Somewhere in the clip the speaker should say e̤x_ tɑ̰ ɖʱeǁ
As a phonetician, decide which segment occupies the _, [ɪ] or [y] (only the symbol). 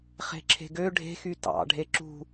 y